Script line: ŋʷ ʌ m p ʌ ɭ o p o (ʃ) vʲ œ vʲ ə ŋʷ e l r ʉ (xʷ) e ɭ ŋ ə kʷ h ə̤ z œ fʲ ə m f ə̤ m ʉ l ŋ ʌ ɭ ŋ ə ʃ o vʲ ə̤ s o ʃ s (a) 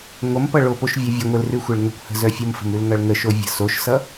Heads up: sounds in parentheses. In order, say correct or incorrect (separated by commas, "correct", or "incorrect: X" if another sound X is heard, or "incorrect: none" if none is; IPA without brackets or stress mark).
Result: correct, correct, incorrect: ʌ